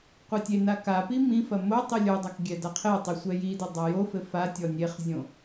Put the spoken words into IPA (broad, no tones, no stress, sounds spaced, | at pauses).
qʷ e tʲ e n a k a p i m ĩ f ɐ m o tˤ i lʲ o dˤ a k ɡʲ ɛ d a qʰ e tˤ i sʷ ɛ j i d ɘ dˤ a j o f ɘ f a tʲ ɔ nʲ e χ zʲ õ